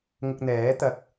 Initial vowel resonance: oral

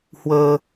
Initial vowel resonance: oral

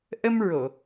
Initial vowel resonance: oral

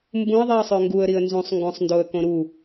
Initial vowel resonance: nasal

